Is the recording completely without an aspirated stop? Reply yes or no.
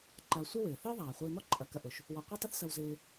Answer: yes